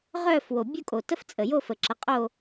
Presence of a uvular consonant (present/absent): present